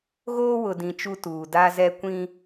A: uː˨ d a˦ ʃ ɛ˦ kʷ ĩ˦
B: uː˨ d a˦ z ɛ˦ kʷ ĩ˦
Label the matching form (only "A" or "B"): B